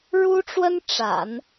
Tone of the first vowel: high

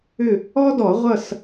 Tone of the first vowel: falling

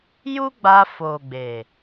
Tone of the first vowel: high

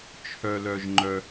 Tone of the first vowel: low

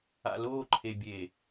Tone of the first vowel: low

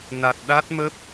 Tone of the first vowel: low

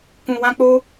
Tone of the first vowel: low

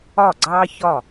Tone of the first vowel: falling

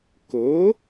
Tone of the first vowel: rising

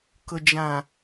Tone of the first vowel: low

